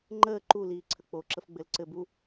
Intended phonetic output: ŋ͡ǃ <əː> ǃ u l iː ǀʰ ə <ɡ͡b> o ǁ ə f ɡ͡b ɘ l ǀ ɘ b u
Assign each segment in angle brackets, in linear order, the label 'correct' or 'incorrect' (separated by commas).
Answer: correct, incorrect